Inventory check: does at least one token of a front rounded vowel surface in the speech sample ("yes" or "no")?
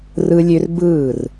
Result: yes